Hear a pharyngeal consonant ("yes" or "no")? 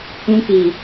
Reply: no